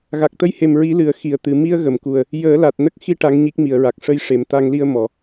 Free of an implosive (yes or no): yes